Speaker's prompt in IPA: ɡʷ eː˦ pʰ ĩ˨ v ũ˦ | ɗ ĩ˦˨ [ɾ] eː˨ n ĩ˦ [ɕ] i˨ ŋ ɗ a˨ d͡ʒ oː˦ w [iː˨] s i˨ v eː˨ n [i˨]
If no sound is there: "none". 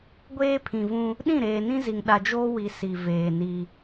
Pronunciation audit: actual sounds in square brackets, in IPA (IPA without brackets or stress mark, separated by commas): ɾ, z, i˨, i˦